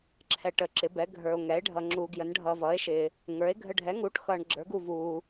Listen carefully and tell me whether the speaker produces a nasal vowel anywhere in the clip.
no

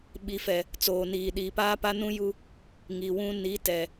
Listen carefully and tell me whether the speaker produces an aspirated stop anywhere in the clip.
no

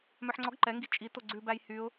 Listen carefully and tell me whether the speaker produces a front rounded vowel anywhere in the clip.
yes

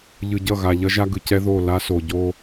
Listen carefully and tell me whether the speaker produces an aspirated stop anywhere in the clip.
no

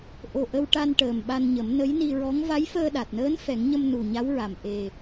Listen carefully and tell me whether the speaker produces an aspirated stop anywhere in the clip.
no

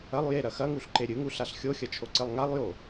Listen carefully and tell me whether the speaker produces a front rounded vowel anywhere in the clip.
no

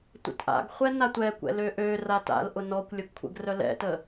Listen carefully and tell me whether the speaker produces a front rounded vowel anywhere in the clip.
yes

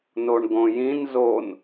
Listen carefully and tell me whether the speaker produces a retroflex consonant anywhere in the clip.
yes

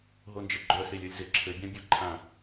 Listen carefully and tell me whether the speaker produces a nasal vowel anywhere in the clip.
yes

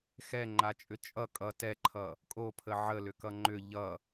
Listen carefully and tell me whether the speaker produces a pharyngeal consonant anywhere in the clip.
yes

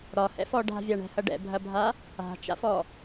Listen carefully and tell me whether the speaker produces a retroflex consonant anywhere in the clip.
yes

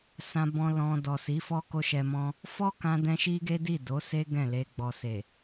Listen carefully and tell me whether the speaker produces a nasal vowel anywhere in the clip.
yes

